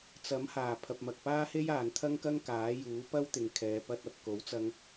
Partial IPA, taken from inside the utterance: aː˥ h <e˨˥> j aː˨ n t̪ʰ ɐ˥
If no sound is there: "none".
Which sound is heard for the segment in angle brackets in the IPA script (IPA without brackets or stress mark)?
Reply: e˥